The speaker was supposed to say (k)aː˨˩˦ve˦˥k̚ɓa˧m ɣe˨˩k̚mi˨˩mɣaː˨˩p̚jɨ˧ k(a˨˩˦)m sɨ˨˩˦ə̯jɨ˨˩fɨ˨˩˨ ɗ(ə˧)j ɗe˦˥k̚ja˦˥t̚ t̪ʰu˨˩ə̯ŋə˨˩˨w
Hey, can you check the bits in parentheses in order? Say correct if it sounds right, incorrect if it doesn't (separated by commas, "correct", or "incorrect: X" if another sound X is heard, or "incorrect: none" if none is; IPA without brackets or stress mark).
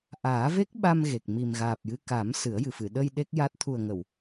incorrect: ʔ, correct, correct